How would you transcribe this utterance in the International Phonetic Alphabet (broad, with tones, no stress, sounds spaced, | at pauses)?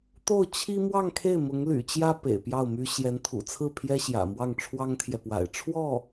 t̪ o˥˩ ʊ̯ t͡ɕʰ i˥ m w ɑ˥˧ ŋ kʰ e˥˩ ɪ̯ m ʊ˧˥ ŋ l y̰˨˩ t͡ɕ j ä˥ p ḛ˨˩ ɪ̯ p j ɑ˥˩ ʊ̯ m y˥ ɕ j ɛ˧˥ n t̪ʰ ṵ˨˩ t͡sʰ ɹ̩˥˩ pʰ j ɛ˥ ɕ j ä̰˨˩ m w ɑ˥˩ ŋ ʈ͡ʂʰ w ɑ˥ ŋ t̪ʰ j ɛ˨ p w a̰˨˩ ɪ̯ ʈ͡ʂʰ w ɔ˥˩